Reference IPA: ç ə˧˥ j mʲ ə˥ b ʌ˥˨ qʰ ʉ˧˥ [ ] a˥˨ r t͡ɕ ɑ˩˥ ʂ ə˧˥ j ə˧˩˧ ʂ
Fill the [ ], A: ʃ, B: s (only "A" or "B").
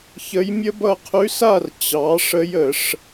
B